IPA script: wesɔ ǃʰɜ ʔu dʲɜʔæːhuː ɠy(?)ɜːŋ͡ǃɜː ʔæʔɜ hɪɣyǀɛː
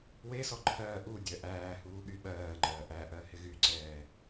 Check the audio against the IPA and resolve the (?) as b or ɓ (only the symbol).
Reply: ɓ